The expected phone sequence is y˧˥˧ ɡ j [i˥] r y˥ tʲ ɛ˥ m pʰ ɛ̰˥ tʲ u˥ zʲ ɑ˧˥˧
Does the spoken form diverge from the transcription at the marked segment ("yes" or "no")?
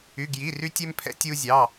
yes